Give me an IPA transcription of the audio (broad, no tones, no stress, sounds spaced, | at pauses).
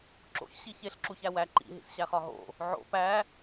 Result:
ǁ o̰ ç ɕ i ç e ɬ ǁ u ç æ w æ ǃ ḭ ɦ ḭ s ɕ æ χ ɒ ɦ o̰ | ʕ o̰ p æ